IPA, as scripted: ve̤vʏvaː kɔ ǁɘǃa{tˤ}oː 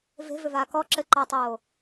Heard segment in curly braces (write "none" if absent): tˤ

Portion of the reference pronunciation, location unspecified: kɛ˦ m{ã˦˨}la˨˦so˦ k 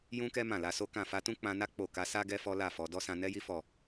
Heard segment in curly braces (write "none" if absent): ã˦˨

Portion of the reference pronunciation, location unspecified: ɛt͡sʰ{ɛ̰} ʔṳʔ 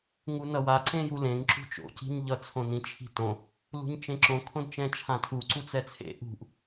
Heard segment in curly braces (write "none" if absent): ḛ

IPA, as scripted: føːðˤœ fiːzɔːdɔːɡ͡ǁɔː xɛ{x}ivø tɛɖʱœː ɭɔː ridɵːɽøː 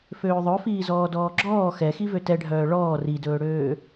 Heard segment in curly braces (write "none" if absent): x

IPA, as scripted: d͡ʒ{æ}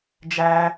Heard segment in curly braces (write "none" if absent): æ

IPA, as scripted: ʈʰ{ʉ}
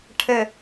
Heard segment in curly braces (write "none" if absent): ə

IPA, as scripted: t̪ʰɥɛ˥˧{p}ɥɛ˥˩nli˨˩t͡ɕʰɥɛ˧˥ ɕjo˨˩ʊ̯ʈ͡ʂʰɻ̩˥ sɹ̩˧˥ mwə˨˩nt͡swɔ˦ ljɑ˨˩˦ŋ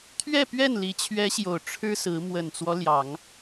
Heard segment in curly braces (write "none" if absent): p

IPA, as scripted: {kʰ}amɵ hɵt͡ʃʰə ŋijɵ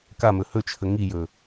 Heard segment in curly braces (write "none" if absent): k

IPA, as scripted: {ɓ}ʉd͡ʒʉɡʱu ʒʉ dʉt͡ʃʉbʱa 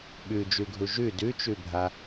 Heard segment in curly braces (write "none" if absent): ɓ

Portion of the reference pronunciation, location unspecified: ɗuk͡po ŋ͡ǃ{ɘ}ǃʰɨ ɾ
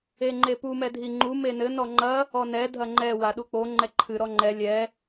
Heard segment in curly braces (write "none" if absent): ɛ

